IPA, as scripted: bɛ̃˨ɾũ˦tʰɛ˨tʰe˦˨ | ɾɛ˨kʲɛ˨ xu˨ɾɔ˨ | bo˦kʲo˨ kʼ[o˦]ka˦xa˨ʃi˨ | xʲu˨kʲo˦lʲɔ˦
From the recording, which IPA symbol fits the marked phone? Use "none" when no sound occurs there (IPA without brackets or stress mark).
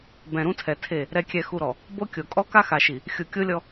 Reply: ɔ˦